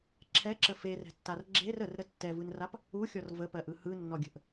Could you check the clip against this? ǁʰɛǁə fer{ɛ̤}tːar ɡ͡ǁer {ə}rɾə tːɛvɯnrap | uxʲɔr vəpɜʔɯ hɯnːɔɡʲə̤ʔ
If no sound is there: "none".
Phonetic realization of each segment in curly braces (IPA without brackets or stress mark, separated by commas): ɛ̤, ə